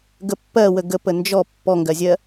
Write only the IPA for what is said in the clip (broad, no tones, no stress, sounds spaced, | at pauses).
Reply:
ɡ ə pː ɜ w ə ɡ ə p ə n d͡ʒ ɔ pː ɔ ŋ ɡ ɜ zʲ ɜ